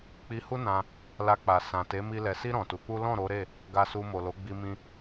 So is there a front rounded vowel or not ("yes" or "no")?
no